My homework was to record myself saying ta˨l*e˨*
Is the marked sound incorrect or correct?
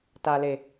correct